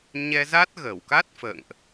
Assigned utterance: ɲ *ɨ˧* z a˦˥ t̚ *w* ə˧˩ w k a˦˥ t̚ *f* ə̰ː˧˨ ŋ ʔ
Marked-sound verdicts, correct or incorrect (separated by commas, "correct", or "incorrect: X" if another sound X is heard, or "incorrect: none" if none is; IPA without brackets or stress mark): incorrect: ɛ˧, incorrect: ɣ, correct